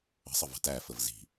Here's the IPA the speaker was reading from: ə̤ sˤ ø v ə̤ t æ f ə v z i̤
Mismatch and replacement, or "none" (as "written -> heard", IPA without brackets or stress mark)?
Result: ø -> ə